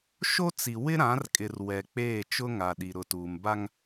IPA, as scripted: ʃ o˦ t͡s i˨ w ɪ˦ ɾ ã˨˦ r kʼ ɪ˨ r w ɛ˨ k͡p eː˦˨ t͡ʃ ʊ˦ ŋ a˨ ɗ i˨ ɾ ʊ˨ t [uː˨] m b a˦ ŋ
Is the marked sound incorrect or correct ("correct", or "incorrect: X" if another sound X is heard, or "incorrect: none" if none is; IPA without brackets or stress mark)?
correct